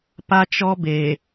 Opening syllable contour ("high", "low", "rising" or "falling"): high